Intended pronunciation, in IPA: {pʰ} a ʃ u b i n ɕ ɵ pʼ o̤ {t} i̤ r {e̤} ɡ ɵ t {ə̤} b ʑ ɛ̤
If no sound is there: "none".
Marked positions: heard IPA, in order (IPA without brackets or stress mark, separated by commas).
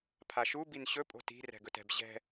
pʰ, t, ɛ̤, ɛ̤